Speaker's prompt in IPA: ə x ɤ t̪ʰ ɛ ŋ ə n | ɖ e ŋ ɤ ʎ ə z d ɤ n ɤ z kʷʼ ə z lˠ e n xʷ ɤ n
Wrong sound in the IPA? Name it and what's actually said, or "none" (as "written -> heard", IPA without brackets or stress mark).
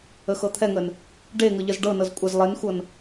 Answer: d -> ɖ